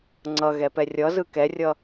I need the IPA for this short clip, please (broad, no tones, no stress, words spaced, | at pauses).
ŋ͡ǀʌɣɛpɛ rʲʌzɯ kɛrʲʌ